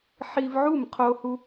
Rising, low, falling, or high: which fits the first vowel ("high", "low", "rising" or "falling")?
high